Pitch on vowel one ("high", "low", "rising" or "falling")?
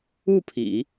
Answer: falling